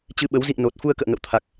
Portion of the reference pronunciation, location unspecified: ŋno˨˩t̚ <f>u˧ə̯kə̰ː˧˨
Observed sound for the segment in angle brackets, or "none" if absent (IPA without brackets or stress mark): f